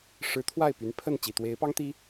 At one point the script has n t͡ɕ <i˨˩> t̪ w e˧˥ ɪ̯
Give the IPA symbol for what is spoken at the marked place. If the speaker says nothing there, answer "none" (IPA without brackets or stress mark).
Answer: i˨˩